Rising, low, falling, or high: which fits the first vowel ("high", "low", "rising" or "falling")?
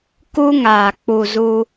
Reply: high